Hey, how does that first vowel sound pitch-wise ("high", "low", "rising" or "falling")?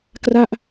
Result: falling